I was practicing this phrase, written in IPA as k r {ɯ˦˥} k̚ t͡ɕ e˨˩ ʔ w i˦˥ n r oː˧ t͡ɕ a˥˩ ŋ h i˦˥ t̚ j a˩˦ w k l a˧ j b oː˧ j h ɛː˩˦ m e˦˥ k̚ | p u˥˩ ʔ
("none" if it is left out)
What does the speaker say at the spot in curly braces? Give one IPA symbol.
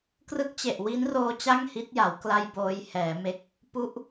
ɯ˦˥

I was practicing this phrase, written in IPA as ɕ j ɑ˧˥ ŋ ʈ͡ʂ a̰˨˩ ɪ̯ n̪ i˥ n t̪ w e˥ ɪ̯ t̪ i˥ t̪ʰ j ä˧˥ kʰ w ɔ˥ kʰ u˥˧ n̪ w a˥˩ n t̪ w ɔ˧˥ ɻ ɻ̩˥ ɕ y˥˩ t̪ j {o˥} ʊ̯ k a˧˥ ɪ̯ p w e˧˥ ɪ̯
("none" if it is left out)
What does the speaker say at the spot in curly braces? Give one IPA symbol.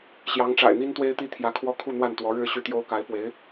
o˥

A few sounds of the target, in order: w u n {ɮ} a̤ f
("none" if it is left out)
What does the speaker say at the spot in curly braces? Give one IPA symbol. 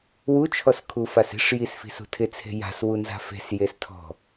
z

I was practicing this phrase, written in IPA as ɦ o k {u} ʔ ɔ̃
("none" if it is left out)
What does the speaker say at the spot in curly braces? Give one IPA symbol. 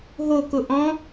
ʊ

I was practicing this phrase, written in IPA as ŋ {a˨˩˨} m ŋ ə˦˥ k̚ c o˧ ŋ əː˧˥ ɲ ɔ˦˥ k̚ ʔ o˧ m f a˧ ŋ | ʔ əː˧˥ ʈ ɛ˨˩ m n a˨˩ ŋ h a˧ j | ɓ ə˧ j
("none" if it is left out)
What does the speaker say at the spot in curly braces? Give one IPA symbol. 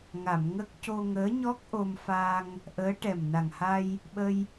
a˨˩˨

